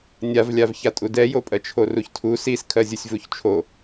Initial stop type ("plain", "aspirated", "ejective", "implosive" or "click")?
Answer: ejective